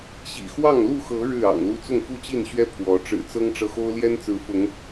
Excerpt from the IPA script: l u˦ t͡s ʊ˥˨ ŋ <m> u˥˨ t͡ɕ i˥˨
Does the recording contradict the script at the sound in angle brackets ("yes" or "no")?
yes